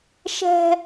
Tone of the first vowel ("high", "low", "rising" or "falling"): high